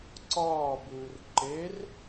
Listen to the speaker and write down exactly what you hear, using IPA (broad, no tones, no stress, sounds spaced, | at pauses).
ǀ ɒː b uː r ǃ e r